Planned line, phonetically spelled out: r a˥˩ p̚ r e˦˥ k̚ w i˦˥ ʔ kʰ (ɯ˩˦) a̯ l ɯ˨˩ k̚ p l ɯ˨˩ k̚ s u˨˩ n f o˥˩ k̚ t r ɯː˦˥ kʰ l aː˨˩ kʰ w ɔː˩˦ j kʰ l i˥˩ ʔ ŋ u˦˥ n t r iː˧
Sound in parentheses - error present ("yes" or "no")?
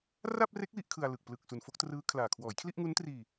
yes